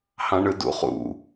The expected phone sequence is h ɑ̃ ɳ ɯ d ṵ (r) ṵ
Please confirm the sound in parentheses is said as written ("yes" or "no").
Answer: no